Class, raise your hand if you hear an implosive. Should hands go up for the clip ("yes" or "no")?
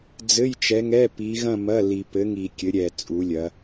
no